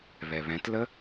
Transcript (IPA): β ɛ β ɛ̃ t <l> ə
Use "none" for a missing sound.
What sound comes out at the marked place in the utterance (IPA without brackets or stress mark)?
l